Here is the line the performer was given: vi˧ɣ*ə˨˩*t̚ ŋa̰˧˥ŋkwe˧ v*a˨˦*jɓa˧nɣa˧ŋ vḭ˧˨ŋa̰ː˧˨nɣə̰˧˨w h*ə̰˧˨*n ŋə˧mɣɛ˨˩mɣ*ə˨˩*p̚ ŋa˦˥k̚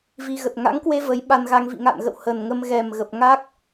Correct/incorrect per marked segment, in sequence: correct, incorrect: ə˨˦, incorrect: ə˨˩, correct

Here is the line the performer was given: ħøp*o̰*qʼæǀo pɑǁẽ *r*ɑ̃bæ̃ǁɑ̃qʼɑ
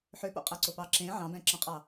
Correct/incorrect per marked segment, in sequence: correct, incorrect: ʕ

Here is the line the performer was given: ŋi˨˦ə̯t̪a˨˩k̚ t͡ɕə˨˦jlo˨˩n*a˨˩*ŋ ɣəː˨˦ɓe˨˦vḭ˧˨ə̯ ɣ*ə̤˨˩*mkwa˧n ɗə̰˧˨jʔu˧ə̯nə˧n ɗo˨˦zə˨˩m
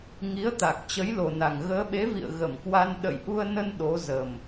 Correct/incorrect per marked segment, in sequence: correct, incorrect: ə˧˩

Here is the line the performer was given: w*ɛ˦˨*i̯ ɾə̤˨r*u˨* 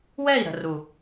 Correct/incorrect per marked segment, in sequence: correct, correct

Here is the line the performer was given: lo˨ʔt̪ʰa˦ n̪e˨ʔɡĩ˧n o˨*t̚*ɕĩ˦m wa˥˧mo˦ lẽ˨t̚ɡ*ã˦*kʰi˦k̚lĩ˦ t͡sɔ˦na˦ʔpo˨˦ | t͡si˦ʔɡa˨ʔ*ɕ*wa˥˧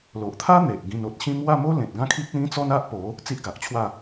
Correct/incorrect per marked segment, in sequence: correct, correct, incorrect: t͡ɕʰ

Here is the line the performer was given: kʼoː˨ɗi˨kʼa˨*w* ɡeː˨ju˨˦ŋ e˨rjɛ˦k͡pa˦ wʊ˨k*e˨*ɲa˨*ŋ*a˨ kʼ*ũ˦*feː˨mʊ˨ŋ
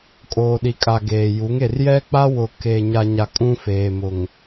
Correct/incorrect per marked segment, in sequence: incorrect: none, incorrect: eː˨, incorrect: ɲ, correct

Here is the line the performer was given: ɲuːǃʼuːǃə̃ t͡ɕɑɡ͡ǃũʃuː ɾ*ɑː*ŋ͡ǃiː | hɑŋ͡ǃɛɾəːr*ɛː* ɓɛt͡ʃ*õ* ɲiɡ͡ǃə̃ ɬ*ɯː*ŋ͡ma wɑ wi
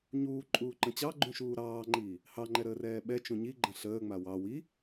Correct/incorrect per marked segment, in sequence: correct, correct, incorrect: ũ, incorrect: əː

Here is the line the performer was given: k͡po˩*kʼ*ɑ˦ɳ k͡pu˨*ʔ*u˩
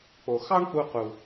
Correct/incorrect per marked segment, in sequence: incorrect: x, incorrect: q

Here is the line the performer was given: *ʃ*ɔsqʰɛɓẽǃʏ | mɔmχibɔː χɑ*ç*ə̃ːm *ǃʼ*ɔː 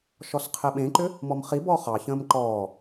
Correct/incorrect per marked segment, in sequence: correct, correct, incorrect: ǃ

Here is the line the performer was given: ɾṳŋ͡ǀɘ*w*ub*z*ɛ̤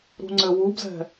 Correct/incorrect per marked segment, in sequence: correct, correct

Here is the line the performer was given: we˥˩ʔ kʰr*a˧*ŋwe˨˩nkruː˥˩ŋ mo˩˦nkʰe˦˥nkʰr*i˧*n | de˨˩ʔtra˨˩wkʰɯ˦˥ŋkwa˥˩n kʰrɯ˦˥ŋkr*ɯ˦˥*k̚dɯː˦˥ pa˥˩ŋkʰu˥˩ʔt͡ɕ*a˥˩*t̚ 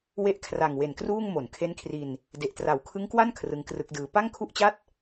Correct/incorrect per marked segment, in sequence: incorrect: a˨˩, correct, correct, correct

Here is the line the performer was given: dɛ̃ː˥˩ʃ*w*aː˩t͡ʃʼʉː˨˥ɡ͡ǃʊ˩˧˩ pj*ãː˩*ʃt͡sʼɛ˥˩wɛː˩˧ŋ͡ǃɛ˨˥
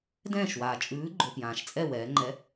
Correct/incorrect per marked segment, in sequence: correct, correct

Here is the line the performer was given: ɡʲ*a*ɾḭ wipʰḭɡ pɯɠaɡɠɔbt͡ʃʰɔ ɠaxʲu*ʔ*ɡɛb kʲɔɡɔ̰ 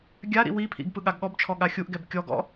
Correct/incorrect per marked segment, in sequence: correct, correct

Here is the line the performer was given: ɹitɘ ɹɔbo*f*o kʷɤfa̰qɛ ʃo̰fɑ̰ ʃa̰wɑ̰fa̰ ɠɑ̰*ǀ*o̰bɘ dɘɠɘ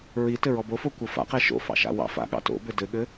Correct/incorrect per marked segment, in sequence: correct, incorrect: t

